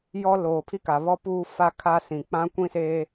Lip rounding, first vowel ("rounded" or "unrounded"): rounded